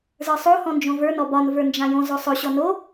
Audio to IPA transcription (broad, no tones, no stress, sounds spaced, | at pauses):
z ə˞ sˤ o h ɔ̃ n d͡ʒ õ v ə˞ n ɔ b ɒ n v ə˞ n d͡ʒ ã j õ z o sˤ ɵ ɕ ɔ n o